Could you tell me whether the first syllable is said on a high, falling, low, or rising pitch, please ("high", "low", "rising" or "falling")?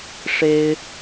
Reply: high